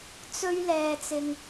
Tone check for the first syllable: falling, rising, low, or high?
high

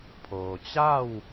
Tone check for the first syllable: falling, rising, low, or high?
low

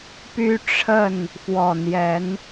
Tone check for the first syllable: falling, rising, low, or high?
high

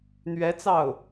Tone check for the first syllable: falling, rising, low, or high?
rising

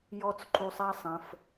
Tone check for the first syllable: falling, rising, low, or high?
high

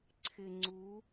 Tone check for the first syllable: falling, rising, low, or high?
low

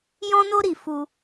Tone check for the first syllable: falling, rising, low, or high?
high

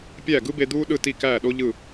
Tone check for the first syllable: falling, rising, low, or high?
falling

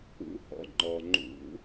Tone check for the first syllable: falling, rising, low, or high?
rising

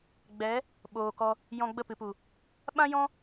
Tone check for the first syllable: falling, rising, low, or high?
rising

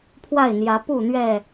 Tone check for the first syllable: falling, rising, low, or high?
falling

